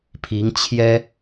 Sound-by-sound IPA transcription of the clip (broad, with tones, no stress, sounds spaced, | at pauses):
pʰ i˧˥ ŋ t͡ɕʰ j ɛ˥